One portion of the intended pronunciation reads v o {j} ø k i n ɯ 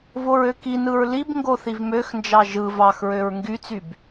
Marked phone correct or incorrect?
incorrect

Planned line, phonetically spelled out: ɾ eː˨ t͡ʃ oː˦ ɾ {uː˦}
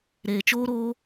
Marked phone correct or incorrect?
incorrect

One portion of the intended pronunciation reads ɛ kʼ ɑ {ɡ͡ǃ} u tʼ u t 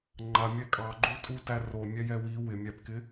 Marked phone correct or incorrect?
correct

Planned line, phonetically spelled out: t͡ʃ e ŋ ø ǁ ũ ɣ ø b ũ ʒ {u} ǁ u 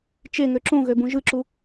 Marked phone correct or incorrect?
incorrect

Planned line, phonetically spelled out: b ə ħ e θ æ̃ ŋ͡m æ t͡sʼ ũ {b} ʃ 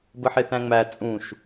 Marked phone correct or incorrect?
incorrect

